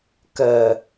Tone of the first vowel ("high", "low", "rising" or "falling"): low